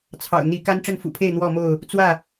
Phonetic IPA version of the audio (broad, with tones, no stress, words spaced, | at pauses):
t͡sʰɑ̰˨˩ʊ̯n̪i˨˦ ka˦nʈ͡ʂə˥˨nfṵ˨˩pʰe˥˨ɪ̯ n̪wɔ˥˨mo˥˨ʊ̯ | t͡swä˥˨